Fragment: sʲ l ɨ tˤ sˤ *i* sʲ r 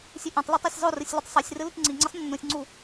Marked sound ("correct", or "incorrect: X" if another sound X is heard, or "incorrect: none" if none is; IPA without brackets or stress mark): correct